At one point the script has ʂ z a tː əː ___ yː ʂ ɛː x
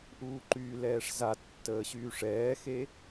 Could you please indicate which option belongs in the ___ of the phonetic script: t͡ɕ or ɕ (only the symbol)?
ɕ